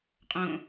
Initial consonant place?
uvular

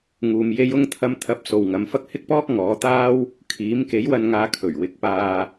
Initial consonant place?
velar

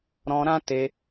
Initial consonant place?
alveolar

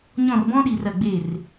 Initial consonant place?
palatal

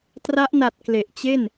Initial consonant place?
alveolar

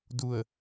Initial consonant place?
alveolar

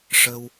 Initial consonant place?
retroflex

